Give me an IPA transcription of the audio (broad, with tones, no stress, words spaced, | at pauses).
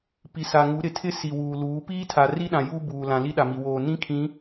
pi˨sa˨ŋu˨˦ ɾɪ˨tʰɪ˦ si˨wuː˨ luː˨˦ piː˦tʰa˨ ri˦ɗã˨ juː˦ buː˨lã˨ li˦ɗa˨mi˨ woː˨nĩ˦ kʰĩ˨˦